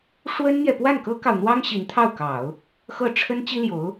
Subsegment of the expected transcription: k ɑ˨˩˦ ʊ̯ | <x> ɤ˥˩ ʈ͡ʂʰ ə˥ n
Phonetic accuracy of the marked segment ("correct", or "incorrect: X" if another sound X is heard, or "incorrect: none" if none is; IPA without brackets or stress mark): correct